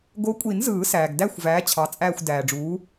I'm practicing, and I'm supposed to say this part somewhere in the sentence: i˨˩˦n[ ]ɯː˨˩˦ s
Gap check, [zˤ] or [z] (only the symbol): z